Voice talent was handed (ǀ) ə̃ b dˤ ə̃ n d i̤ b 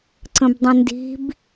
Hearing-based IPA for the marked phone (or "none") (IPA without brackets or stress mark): ǀ